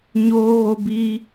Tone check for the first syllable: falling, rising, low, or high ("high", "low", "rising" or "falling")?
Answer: high